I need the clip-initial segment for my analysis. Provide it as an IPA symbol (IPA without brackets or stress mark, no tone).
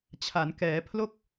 t͡ɕʰ